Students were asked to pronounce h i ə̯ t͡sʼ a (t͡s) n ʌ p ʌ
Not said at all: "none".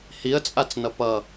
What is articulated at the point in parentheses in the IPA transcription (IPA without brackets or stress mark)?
t͡s